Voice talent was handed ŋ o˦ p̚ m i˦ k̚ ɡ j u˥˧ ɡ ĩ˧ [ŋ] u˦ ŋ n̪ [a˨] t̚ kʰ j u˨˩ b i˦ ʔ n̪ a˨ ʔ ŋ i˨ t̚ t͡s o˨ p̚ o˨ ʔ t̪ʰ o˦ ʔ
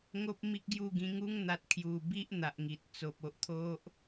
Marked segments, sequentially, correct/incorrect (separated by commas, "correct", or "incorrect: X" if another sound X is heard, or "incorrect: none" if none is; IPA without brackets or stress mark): correct, correct